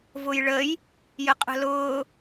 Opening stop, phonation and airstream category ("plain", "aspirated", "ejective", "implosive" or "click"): ejective